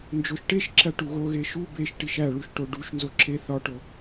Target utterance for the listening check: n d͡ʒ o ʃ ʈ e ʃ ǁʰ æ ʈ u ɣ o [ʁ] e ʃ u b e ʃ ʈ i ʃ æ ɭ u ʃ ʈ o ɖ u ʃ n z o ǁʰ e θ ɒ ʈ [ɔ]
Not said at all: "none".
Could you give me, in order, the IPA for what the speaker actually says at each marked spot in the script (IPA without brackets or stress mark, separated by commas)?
ɣ, o